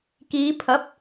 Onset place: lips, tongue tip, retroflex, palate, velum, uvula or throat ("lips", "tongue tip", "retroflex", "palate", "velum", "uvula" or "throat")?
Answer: velum